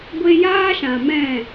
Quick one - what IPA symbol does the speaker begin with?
ɡʷ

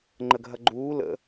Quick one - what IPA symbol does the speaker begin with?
ŋ͡ǃ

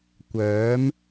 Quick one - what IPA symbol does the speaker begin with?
kʷ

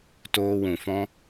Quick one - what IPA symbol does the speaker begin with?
t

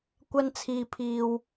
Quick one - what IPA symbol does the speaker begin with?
kʷ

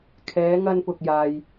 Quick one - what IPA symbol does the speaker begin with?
kʰ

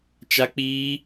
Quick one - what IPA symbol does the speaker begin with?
t͡ʃ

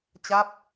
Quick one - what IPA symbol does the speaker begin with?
t͡ɕ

